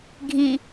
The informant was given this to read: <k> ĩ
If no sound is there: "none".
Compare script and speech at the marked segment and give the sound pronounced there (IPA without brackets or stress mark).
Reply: ɡʱ